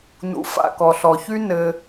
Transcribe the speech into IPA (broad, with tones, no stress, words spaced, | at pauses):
nṵ˨ fa̰˨kɔ˨ɬɔ˨çy˦ nɘ˦